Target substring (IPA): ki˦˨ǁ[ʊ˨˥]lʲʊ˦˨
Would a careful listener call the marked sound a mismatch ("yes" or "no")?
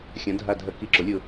no